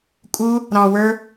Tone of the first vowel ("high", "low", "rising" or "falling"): high